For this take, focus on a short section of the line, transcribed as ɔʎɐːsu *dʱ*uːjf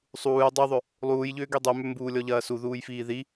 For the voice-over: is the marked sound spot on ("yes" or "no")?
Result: no